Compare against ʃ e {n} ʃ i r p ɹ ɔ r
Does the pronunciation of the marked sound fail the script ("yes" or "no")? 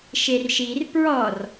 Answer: yes